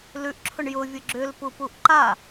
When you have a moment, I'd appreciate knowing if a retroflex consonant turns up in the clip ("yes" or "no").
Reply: yes